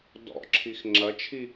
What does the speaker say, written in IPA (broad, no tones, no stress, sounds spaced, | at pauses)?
d ɔ̰ ǁʰ i x ŋ͡ǁ ɐ t͡ʃʰ i